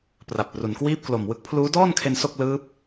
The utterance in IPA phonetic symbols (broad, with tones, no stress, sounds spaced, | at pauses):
p r a˨˩ p̚ r u˩˦ n k w iː˥˩ p̚ k l o˨˩ m w ɯ˦˥ k̚ pʰ l uː˦˥ d ɔː˥˩ n kʰ e˧ n s o˥˩ k̚ l ɯː˦˥ p̚